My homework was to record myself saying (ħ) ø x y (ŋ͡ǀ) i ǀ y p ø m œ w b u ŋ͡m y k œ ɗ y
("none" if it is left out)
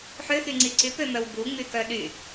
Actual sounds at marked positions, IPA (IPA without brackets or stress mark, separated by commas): ħ, ŋ͡ǀ